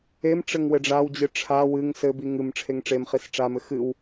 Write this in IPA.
e m ʈ͡ʂ ɘ ŋ w ɘ ɖ͡ʐ a w d͡ʑ ɨ ʈ͡ʂʰ a w ɨ ŋ s ɘ b i ŋ ɨ m ʈ͡ʂʰ e ŋ ʈ͡ʂ e m χ i s ʈ͡ʂ a m ɘ x ɨ w

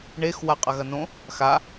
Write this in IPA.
ɳ e x w a qʼ ɐ ɣ ɐ n õ | x a

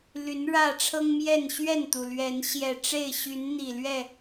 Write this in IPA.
l y˨˦ n ɻ ä˥˨ ʈ͡ʂʰ ɤ˦ ŋ m j ɛ˥˨ n ɕ ɥ ɛ˥˨ n t̪ u˩ l ɥ ɛ˨˦ n ɕ j ɛ˨˩ ʈ͡ʂ e˥˨ ɪ̯ ɕ y˨˦ n n̪ i˨˩ l ɥ ɛ˥˨

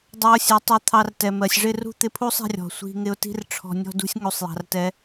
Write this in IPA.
dˤ ɑ˧ ʊ̯ sʲ ɛ˨ tˤ u˧ t̪ʰ ɑ˧ r t ɛ˨ m ɜ˨ sʲ ʐ ɪ˦˨ r ṳ˦ t̪ ɪ˧ pʰ u˦ sˤ ɛ̤˧ rʲ ɔ̤˨ sʷ i̤˧ ŋ ɪ˧ ʊ̯ t i̤˦ r ʈ͡ʂʰ ɔ̤˧ nʲ ɔ̤˦ d ṳ˦ sʲ ŋ u˨ sˤ j ɑ̤˨ r t ɛ˧

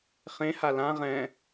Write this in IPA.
χ ẽ h a l ã ʁ ɛ̃

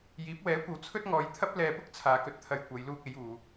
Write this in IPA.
j iː˨˥ p̚ w ɛː˨˥ kʷ ɐ˨˧ w t͡sʰ ɵ˥ t̚ ŋ ɔː˨˧ j t̪ʰ ɐ˥ p̚ l ɛː˨ p ʊ˥ k̚ t͡sʰ aː˧ k ɵ˥ t̚ t̪ʰ ɐ˧ j kʷ ɐ˨˧ j l uː˥ k̚ e˨˥ j uː˨˧

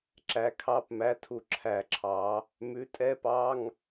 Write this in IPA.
ǁ æ˧ kʰ ɑ˧˥˧ p m æ˧˥˧ tʰ u˧ ǁʰ æ˧ ǁʰ ɑ˨˥ | m ʉ˨˥ tʼ ɛ˧˥˧ p ɑ˧˥˧ ŋ

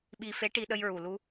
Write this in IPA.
ɓ i˧ f e˧˥ ʈ i˧ ɗ ə˧ j ɹ u˨˩ l u˧

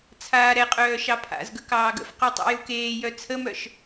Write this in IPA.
t͡sʰ aː ɾ ɛ qʼ œː ʃ ɑ pʰ a̰ z ɡ ə k ɑː ɡ ə̰ f q u tˤ ḛ j u k eː j œ t͡sʰ ə m œ ʃ

